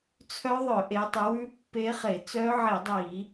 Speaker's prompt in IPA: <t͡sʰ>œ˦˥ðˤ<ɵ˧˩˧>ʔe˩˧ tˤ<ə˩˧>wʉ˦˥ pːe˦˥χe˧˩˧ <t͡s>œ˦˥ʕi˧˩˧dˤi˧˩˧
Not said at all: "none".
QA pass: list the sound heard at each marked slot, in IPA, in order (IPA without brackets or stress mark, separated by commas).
t͡sʰ, œ˧˩˧, ʉ˩˧, t͡s